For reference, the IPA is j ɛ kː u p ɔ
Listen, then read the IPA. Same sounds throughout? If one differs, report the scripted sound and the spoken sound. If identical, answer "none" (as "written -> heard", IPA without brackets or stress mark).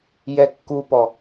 none